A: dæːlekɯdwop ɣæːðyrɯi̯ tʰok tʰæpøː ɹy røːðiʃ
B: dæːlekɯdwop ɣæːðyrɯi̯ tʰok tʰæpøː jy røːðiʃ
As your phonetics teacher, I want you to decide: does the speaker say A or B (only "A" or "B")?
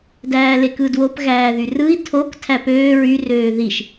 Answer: A